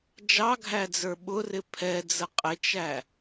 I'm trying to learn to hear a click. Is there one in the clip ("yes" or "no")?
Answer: no